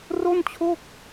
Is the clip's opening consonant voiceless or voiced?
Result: voiced